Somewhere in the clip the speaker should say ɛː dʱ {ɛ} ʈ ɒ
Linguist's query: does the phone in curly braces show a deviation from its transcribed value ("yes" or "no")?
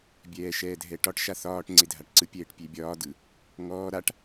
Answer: no